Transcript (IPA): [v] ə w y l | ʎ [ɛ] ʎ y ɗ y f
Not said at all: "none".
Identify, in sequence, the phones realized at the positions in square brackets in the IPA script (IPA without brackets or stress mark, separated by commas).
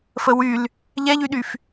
f, ɛ